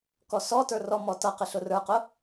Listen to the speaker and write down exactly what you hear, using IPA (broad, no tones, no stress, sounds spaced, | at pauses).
k ɔ s ɔ t ə˞ r ɔ m ɔ t ʌ q ɪ ɬ ʊ r ə˞ q ʊ